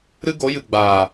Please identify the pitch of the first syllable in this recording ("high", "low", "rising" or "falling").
high